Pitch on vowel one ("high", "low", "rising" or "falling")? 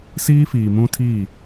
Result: high